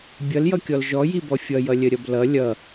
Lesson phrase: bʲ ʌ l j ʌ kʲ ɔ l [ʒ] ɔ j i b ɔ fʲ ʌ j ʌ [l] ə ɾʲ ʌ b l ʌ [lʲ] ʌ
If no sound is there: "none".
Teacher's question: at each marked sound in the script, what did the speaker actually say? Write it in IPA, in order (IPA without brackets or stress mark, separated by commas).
ʒ, lʲ, lʲ